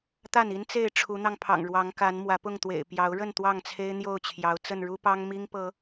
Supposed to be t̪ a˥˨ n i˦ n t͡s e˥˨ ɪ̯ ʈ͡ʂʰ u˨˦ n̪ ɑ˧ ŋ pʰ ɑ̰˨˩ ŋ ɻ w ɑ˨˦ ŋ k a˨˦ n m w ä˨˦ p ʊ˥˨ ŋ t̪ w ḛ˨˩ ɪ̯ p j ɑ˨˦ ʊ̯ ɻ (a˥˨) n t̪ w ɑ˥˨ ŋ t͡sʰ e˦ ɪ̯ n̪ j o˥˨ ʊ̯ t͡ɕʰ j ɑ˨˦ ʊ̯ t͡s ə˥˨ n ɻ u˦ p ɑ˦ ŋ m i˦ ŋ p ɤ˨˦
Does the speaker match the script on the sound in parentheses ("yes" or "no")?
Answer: no